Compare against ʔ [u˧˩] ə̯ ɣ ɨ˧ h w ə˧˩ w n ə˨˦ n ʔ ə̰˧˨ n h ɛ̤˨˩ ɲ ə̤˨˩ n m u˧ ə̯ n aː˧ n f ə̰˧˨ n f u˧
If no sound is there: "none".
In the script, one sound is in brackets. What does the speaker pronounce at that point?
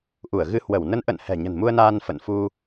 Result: u˧˩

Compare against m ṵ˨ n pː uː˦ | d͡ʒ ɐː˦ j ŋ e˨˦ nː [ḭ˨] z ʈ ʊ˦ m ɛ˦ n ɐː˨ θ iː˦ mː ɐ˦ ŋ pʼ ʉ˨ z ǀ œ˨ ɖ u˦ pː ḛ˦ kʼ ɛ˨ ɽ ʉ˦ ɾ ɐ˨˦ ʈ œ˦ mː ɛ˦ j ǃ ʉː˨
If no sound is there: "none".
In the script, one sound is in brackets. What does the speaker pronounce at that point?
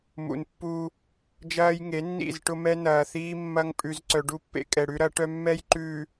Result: ḭ˦˨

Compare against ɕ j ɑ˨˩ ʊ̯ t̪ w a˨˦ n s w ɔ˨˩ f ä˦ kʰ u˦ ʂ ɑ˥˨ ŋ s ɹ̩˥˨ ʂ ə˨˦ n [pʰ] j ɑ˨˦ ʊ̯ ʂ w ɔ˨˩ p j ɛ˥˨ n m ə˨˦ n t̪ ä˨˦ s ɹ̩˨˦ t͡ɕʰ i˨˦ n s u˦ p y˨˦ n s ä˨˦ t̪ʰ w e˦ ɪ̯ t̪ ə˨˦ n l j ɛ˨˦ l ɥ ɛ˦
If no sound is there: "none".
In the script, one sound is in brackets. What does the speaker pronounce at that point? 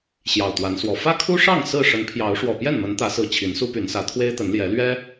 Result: pʰ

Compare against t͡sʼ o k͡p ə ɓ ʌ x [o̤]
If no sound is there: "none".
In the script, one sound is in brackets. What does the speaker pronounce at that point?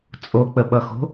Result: o̤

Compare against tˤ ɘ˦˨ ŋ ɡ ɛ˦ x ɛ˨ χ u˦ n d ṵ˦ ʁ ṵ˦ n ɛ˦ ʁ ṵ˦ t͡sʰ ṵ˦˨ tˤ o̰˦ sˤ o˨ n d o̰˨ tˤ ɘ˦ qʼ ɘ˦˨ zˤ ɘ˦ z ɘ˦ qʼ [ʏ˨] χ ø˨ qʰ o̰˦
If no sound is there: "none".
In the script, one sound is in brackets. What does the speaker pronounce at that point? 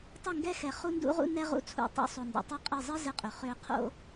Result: ʏ˨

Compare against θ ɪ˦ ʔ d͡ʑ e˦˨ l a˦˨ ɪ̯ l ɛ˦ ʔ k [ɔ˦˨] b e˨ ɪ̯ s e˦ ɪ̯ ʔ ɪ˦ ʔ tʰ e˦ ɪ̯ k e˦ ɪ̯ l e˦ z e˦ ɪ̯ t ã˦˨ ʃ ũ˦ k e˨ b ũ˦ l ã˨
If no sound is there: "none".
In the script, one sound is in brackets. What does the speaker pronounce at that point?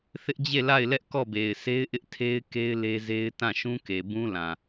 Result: ɔ˦˨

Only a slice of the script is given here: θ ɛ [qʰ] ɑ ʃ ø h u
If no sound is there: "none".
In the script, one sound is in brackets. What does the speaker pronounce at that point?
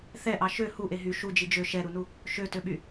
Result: ʔ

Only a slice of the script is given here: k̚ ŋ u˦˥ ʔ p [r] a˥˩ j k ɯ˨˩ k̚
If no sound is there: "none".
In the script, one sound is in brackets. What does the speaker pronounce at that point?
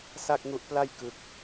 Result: l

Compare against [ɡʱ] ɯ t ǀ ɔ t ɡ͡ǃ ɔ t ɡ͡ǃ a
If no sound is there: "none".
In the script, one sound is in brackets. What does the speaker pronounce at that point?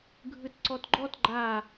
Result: ɡʱ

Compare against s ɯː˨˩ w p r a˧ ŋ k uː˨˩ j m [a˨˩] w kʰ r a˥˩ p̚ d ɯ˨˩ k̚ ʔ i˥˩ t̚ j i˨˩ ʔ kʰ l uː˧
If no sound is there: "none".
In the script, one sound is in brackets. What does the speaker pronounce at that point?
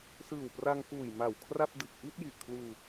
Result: a˨˩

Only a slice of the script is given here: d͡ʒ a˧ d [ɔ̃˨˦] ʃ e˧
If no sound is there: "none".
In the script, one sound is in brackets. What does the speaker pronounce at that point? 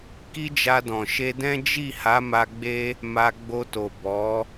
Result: ɔ̃˨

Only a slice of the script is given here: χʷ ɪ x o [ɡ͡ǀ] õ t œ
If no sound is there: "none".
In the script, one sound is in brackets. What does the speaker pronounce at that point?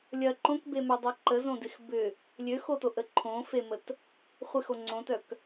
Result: ŋ͡ǀ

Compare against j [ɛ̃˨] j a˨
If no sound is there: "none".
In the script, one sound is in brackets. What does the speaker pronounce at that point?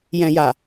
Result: ɛ̃˨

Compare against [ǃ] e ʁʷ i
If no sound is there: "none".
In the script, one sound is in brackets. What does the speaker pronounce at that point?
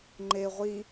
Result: ŋ͡ǃ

